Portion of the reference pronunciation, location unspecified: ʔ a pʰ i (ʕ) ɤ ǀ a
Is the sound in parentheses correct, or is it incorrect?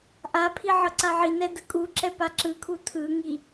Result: correct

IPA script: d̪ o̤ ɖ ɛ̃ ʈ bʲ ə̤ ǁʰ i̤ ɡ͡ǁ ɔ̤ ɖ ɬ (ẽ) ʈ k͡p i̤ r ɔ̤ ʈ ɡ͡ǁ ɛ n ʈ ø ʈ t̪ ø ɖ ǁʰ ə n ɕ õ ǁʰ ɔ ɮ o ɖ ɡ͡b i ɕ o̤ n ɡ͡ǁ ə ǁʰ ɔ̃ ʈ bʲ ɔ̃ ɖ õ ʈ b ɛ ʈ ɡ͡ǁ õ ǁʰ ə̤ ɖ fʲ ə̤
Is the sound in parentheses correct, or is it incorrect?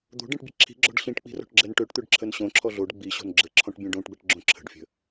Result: incorrect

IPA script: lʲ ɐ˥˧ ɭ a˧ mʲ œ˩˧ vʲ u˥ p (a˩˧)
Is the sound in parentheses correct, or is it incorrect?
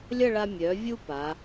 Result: correct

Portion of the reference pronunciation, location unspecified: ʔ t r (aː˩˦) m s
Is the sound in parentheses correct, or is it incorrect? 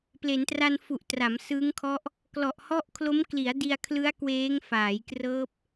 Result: incorrect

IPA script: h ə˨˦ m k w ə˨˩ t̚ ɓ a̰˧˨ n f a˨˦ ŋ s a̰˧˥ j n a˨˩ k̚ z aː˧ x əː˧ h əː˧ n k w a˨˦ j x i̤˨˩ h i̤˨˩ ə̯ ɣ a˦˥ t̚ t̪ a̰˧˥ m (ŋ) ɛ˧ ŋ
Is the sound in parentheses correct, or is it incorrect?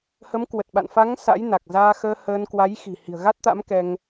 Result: incorrect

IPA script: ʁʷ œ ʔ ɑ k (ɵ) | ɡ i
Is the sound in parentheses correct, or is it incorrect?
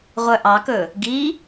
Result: correct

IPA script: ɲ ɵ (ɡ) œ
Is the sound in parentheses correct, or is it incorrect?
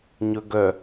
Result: correct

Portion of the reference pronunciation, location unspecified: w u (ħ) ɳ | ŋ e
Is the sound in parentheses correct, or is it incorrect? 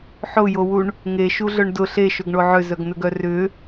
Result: incorrect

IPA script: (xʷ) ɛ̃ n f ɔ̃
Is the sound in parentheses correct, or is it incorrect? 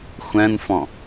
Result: correct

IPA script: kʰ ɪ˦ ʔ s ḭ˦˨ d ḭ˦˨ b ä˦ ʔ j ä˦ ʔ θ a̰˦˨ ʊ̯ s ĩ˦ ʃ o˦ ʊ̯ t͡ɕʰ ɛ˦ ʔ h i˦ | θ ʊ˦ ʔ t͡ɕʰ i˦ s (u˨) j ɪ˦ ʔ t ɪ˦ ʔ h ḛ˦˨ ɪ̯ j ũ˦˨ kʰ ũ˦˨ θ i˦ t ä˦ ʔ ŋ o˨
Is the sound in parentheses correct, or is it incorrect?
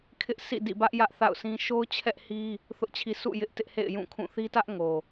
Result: incorrect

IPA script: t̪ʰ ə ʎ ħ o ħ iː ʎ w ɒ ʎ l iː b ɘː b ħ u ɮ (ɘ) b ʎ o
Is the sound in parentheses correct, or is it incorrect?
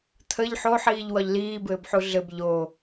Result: correct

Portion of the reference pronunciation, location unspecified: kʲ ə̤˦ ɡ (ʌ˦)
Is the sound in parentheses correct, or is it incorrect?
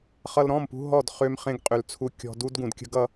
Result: correct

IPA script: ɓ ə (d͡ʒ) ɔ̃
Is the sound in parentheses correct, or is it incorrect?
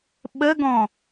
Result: incorrect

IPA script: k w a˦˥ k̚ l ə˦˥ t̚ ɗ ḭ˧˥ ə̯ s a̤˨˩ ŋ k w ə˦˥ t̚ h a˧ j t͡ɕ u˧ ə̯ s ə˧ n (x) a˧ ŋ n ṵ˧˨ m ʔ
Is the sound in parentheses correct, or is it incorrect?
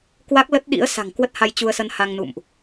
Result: incorrect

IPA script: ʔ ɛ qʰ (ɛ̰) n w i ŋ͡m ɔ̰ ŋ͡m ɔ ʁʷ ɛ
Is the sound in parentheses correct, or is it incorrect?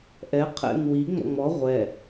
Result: correct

